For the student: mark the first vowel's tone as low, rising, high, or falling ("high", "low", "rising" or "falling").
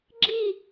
falling